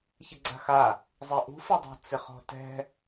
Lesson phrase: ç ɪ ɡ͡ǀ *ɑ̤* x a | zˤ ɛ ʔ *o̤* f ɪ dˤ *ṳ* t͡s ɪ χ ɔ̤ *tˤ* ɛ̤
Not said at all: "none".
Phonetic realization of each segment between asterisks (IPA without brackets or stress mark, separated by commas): a̤, ṳ, o̤, t